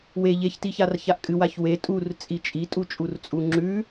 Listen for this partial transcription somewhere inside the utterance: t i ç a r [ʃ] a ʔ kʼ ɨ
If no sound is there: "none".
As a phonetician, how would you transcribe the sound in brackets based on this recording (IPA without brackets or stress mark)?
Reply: ç